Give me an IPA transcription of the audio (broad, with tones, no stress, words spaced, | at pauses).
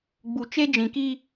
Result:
ɡ͡bu˨ t͡ʃe˦d͡ʒĩ˨ki˦